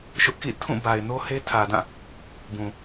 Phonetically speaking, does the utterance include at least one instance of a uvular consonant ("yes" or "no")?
no